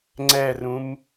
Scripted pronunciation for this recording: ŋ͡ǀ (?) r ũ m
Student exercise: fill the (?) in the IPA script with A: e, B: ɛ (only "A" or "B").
B